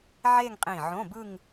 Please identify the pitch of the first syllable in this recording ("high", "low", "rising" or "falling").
falling